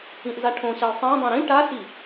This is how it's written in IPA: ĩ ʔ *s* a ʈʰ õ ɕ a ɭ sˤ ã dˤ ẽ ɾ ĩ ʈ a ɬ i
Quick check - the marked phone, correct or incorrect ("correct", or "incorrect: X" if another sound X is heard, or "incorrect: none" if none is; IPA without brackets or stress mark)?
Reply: incorrect: z